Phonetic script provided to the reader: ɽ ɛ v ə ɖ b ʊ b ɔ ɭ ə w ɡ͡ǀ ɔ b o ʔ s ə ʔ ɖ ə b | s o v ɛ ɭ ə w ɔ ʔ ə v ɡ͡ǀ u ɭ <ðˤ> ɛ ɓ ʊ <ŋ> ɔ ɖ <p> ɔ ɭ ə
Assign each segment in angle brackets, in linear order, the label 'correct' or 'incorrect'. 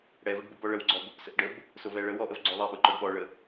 correct, incorrect: ǃ, incorrect: ɓ

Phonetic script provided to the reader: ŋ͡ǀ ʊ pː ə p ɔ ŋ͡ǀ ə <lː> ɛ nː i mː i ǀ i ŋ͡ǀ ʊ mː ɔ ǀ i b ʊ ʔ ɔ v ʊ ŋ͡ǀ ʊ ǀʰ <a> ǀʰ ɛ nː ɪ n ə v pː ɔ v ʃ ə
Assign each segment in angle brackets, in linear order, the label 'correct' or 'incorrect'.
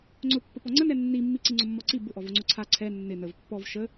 incorrect: n, correct

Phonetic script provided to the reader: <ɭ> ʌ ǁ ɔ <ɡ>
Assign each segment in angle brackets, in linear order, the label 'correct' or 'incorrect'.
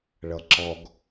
correct, correct

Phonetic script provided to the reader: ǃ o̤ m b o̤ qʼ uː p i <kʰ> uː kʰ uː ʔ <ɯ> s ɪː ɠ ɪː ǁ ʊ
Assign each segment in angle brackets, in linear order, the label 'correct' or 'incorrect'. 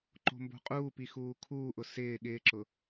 incorrect: x, incorrect: ʊ

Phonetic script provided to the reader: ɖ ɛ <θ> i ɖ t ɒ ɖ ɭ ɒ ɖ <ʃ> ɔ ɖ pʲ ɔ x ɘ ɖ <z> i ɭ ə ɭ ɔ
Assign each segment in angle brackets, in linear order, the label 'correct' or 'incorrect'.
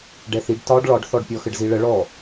correct, incorrect: θ, correct

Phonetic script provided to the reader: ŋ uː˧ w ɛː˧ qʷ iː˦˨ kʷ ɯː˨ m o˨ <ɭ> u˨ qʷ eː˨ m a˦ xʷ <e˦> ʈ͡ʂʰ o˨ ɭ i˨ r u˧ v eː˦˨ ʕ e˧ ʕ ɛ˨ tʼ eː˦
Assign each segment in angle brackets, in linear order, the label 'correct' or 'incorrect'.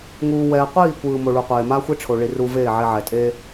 correct, correct

